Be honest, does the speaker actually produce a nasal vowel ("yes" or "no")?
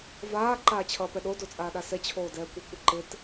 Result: no